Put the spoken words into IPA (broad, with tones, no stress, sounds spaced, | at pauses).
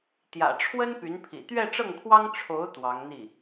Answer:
t̪ j ä̰˨˩ ʈ͡ʂʰ w ə˥ n p y˧˥ n pʰ ḭ˨˩ t̪ ɥ ɛ˥˧ ʈ͡ʂ ɤ˥˩ ŋ kʰ w ɑ˥ ŋ ʈ͡ʂʰ o˧˥ ʊ̯ t̪ w ɑ˧˥ ŋ n̪ i˥˩